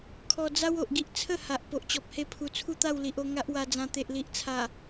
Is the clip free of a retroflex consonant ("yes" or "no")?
yes